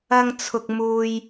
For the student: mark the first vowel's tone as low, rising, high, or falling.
high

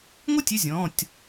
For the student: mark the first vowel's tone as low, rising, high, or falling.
falling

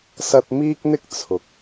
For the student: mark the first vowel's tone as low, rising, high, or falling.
high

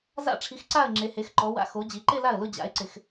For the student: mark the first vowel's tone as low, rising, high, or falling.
falling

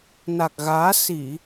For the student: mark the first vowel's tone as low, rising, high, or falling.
low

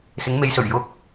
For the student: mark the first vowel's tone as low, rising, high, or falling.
rising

